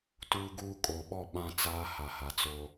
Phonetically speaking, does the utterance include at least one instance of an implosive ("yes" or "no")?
yes